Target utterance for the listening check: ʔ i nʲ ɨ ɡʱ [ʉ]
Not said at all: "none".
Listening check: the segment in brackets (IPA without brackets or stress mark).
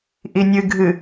ɨ